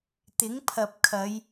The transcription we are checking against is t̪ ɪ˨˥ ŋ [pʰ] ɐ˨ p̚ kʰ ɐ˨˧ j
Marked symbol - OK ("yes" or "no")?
yes